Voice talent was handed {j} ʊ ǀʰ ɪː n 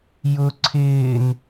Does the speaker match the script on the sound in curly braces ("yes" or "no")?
yes